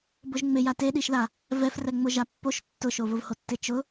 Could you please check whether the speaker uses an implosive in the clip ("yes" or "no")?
yes